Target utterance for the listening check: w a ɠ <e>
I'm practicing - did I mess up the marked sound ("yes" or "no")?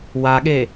no